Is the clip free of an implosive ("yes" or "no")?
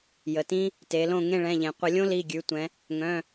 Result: yes